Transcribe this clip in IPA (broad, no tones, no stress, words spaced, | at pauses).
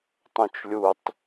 tˤœ̃t͡ʃlʲutˤ